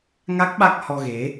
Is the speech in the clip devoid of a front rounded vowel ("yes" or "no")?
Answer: yes